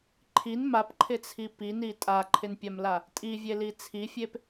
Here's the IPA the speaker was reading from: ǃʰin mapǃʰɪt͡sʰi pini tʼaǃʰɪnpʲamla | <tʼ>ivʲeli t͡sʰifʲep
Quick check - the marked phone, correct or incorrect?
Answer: correct